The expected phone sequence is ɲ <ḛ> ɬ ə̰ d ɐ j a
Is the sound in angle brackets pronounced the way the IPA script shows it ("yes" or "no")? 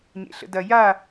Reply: yes